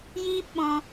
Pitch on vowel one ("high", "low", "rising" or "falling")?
high